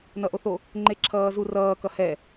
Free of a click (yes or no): no